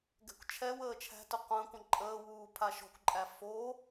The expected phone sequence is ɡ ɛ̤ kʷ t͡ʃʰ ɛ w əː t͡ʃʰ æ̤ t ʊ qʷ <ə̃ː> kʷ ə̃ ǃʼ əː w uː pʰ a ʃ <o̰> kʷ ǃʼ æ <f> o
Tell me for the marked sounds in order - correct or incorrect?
correct, incorrect, correct

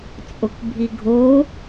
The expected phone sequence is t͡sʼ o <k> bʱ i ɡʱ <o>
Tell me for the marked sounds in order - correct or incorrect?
correct, correct

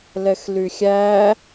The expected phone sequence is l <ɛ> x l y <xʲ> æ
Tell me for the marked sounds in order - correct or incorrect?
correct, correct

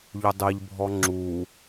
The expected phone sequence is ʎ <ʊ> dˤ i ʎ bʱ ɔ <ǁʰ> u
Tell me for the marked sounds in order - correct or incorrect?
correct, incorrect

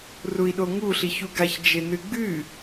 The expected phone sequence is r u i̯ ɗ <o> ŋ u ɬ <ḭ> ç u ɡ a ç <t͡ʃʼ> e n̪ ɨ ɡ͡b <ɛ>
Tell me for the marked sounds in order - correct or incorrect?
correct, incorrect, incorrect, incorrect

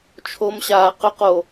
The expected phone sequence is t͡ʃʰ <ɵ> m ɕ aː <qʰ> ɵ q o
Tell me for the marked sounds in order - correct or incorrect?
incorrect, incorrect

